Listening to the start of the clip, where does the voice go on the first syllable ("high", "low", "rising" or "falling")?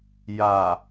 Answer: low